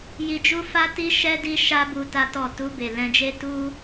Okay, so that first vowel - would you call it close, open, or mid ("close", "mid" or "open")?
close